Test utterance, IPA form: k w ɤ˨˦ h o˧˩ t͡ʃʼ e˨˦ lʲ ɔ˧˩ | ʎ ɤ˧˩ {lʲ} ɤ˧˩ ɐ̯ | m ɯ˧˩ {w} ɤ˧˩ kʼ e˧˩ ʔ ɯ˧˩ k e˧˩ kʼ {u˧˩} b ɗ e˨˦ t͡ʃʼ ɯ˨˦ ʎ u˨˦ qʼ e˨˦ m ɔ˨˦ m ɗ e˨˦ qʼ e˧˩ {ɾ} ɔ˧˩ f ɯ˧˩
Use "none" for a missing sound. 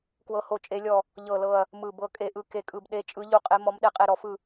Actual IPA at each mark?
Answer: l, b, ɯ˧˩, ɾ

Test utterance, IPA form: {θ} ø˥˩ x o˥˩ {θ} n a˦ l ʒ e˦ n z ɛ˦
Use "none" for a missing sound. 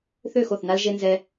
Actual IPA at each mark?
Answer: θ, θ

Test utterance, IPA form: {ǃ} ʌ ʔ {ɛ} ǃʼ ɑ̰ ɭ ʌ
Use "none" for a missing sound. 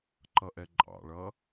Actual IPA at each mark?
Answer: ǃ, ɛ

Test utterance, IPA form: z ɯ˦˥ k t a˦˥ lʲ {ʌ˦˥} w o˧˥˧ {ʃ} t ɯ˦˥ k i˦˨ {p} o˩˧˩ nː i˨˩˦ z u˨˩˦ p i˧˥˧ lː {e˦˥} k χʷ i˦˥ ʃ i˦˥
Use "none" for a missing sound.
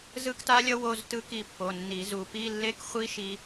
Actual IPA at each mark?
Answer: ʌ˦˥, z, pː, e˦˥

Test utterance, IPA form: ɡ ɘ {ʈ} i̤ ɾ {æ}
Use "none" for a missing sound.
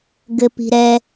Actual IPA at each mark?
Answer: p, ɛ

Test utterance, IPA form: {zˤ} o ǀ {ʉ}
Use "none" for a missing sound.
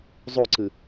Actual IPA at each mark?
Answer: zˤ, ɨ

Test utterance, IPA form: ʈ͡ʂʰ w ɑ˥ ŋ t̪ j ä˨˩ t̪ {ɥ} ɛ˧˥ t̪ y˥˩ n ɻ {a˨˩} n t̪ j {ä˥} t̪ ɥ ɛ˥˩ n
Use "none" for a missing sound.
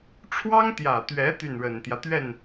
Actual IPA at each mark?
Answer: ɥ, ə˨˩, ä˦

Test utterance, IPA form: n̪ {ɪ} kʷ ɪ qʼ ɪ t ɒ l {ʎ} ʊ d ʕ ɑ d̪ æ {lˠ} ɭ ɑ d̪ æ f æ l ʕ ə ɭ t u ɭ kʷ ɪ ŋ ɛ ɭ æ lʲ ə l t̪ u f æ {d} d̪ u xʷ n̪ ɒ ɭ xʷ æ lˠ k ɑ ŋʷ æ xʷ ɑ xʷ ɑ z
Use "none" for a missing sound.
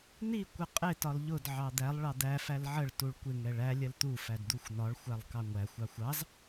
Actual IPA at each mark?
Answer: i, ʎ, lˠ, d

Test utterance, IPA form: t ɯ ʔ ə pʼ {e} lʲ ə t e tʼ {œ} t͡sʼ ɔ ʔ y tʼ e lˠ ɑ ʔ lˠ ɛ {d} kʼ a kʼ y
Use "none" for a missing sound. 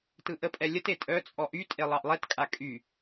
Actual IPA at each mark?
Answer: ɛ, œ, t

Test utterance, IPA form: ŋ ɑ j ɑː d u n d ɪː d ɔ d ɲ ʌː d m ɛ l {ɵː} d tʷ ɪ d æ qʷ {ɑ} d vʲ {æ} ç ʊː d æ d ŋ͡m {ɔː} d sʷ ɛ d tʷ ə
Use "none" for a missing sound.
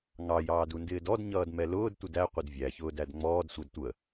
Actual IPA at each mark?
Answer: ʊː, ʌ, æ, ɔː

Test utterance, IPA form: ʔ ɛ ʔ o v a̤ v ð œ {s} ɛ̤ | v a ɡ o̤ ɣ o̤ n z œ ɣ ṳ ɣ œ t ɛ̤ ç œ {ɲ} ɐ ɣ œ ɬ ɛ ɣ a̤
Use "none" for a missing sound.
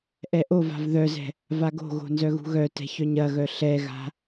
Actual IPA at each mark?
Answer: z, ɲ

